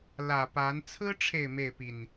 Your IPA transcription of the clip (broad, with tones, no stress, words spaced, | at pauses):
lä˨˩pa˨˦n t͡sʰɹ̩˦ʈ͡ʂʰe˨ɪ̯ me˥˨ɪ̯pi˨˩n